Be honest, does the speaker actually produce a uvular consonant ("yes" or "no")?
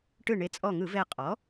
yes